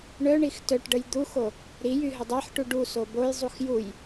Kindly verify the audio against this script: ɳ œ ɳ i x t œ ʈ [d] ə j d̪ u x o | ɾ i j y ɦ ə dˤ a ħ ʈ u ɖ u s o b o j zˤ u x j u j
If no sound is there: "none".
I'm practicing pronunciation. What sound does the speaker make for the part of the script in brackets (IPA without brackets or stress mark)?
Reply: ɖ